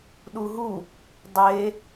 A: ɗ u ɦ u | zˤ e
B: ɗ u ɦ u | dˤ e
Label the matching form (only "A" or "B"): B